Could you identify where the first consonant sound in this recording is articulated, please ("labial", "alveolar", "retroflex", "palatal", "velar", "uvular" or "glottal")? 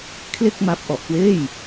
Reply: velar